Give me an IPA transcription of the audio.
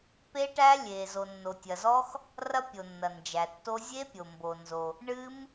pe˦˥ʈæ˦˥ lʲe˩ zo˩nːo˩tʲɐ˩zɔ˦˥x | rɐ˦˥pʲo˩nːɐ˩ nd͡ʒæ˩tːo˦˥ zʲe˦˥pʲo˩mbo˩nzo˩ | ɳɨ˦˥m

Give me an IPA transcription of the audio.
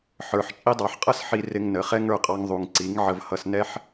ħə˞˨ħ t͡ʃʼi˧dˤɑ˨ħqʼʌ˦s ħi˧ rɪ˧ŋnə˨˦ χɛ˦ŋə˞˦˨qʼɑ˧ŋ ðˤu˨ŋǀi˨˦ŋ ʕə˧vhʌ˧s nɛ˦ħ

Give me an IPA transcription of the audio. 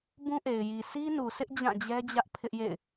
bũ˦ʔe˨ɪ̯ ji˨ si˦nu˨sʰɪ˦ʔ d͡ʑã˦˨d͡ʑɛ˦ d͡ʑä˦ʔ pʰɪ˦ʔjḛ˦˨ɪ̯

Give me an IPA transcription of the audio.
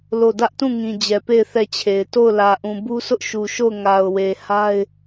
lo˦˨ dä˦ʔtũ˦˨ŋĩ˨ d͡ʑɛ˨pe˦˨ɪ̯ θɛ˦˨t͡ɕʰe˨ɪ̯ to˦˨ʊ̯lä˨ʔũ˨ bu˦sʊ˦ʔʃu˨ʃo˦˨ʊ̯ ŋa˨ʊ̯we˨ha˦ɪ̯

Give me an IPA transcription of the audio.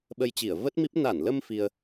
ɓə˧jt͡ɕi˧˩ə̯ və˦˥t̚mi˦˥p̚ na˧˩nlə˧m fi˧ə̯

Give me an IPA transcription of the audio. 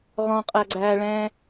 ʁɔ̃qʼæɡ͡ǀæːɭɛ̃ː

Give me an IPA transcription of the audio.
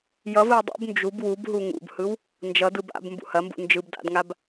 jʌvɯw dˤṵb nd͡ʒub wubɦu ŋṵbhɯw | nd͡ʒʌdɯ ba̰bmbṵ hɐmbṵ nd͡ʒɯb da̰dŋab

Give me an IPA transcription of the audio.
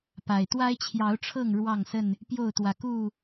pa˨˩ɪ̯ t̪wa˦ɪ̯t͡ɕʰjɑ˨˦ʊ̯ʈ͡ʂʰɤ˥˨ŋ ɻwɑ˥˨ŋsə˥˨n | pjo˥˨ʊ̯t̪wä˨˩ ku˥˨

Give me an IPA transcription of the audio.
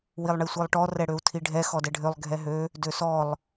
wilˠɳisʷilˠʈɔ rɛɽøu̯tʰiɖʱɛ xɔdɛɖʱølˠ ɡʱɛɦø | døsɔlˠ

